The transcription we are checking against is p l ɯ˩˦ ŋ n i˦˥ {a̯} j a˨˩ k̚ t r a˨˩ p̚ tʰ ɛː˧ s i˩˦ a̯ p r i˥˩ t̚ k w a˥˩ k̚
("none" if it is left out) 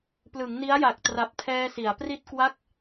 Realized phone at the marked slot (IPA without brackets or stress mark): a̯